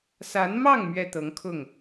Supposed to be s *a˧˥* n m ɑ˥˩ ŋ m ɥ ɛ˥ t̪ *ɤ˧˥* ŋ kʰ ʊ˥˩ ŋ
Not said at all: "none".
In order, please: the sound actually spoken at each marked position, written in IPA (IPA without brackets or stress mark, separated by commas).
a˧˥, ɤ˧˥